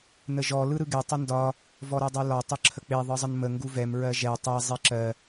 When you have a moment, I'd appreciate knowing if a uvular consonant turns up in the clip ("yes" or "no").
no